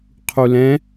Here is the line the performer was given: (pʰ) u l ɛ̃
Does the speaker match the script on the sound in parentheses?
no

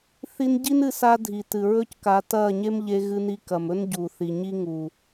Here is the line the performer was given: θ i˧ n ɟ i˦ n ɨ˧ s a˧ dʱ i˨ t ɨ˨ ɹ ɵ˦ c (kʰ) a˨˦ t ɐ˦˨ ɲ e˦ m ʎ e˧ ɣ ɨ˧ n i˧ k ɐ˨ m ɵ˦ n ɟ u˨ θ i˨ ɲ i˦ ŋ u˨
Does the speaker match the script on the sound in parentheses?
no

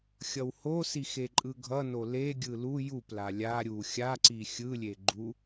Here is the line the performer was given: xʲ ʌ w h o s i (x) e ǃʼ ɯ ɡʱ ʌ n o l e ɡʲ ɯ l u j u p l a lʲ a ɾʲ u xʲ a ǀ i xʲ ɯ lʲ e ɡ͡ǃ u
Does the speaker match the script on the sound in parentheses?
yes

